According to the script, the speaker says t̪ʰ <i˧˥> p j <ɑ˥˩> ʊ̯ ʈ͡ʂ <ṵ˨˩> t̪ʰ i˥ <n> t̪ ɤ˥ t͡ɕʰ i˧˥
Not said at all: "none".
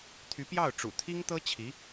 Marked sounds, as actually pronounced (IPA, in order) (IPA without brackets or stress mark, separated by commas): y˧˥, ɑ˥˩, ṵ˨˩, ŋ